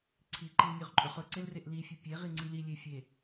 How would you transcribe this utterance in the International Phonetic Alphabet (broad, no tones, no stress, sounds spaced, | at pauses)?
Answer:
ǀʰ i ǃ i l nʲ ɵ ʁ ǃʼ ɵ χ ɵ ǀ e l r e ʔ l i fʲ ɵ pʲ e ʁ i ŋ͡ǀ i l i lʲ e fʲ e